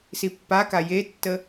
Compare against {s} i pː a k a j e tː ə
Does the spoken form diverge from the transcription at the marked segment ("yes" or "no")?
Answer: no